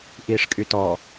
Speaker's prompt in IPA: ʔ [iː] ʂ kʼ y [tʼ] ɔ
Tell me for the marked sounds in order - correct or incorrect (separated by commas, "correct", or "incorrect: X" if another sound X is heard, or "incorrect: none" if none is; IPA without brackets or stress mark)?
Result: correct, incorrect: t